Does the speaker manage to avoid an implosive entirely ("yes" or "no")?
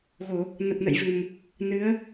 yes